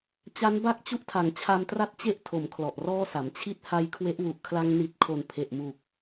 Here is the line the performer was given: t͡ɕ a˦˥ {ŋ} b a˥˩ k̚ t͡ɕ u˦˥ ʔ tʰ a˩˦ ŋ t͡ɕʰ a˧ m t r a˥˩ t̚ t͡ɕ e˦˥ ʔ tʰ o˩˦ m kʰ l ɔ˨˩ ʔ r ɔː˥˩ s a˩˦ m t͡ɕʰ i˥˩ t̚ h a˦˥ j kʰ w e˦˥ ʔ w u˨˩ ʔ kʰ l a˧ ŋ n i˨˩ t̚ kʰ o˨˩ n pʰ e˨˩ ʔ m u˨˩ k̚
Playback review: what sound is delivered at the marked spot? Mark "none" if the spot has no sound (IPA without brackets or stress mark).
n